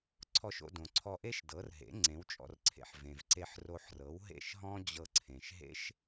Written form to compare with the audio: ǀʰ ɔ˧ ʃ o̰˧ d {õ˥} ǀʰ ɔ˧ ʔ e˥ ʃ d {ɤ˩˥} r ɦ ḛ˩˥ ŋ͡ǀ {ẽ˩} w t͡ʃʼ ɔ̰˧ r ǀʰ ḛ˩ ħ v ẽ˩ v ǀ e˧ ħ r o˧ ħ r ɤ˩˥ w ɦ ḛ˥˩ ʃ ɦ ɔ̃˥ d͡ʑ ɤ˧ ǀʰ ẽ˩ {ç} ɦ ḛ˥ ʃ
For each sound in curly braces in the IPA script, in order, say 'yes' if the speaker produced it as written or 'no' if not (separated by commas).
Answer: no, yes, no, no